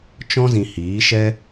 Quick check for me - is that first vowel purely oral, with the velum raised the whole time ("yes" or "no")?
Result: no